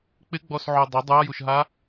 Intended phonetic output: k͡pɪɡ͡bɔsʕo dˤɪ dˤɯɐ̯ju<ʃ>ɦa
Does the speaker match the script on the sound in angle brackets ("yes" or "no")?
yes